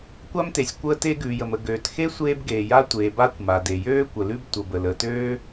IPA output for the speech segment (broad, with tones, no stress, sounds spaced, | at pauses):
kʷ a˥ m t e˩ sʲ kʷ əː˥ t e˥ ɡ ʉː˩ j ə˩ m ə˩ ɡ øː˩ t x e˥ sʷ eː˥ b ɡ eː˩ j a˥ tʷ eː˩ b a˥ kʷ m a˩ d e˩ j øː˥ kʷ ə˩ l ʉ˥ b tʷ ə˩ b ə˩ l əː˩ t øː˥